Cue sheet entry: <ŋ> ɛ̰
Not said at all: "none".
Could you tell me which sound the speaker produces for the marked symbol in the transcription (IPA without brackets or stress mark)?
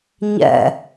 ɲ